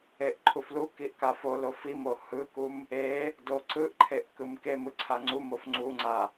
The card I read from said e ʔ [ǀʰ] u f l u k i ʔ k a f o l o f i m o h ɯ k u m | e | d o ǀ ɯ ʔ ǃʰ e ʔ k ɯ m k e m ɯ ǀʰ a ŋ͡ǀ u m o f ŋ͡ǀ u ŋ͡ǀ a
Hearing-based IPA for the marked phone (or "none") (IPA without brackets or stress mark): ǃʰ